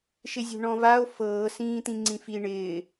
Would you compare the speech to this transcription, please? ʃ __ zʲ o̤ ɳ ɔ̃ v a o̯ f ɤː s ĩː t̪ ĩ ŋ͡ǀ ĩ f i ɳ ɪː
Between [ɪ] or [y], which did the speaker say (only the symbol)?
ɪ